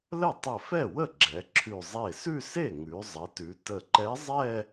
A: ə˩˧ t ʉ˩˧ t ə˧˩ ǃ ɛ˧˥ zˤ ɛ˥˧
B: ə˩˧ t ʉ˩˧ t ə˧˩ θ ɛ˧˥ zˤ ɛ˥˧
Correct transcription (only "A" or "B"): A